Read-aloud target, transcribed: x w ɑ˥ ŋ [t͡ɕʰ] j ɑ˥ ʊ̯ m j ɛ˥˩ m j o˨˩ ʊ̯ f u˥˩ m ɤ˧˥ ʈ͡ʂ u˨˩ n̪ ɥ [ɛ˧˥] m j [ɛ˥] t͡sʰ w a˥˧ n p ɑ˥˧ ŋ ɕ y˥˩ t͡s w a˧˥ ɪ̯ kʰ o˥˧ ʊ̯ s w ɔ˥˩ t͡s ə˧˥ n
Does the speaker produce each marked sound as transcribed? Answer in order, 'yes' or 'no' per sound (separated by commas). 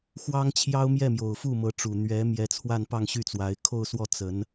yes, yes, no